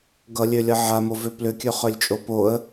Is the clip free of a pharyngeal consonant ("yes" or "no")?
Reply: no